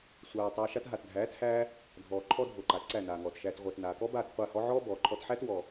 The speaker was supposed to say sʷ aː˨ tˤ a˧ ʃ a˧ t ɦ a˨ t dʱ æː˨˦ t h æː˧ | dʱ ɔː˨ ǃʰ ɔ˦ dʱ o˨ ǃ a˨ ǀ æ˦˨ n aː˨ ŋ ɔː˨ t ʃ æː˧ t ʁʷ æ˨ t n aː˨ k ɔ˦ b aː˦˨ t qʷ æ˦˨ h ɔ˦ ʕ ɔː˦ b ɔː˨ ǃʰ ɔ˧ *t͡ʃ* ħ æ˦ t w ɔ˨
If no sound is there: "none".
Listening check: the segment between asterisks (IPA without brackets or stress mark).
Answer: t